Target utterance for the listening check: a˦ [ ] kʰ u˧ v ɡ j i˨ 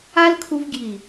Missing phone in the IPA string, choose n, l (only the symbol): l